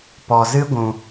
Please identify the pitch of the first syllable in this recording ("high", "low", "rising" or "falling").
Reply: low